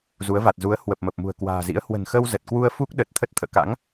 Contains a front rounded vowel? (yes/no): no